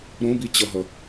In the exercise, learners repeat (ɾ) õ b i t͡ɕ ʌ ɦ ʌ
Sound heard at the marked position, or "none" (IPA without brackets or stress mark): ɾ